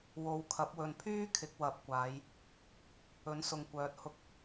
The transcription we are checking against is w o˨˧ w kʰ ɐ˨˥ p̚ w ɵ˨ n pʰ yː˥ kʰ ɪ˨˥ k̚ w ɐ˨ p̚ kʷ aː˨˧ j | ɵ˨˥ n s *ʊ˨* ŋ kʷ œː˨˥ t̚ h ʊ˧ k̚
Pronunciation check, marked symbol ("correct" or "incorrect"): correct